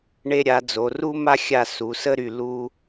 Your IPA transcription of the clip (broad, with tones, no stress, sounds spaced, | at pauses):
ɳ e˧ ɾʲ a˩˧ d͡z o˩˧ r u˥ m a˥˧ xʲ a˧˩ s u˩˧ s ə˥˧ ɾ y˧˩ l u˧